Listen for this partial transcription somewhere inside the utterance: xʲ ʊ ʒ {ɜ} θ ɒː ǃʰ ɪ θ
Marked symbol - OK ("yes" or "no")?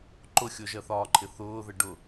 yes